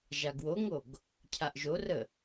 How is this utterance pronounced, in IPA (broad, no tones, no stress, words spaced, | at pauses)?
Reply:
ʒaɡwoŋoɡ | cʰaʔʒorə